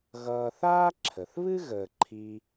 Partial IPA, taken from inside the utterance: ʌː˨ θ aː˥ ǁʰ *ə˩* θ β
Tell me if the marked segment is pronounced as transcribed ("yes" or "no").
yes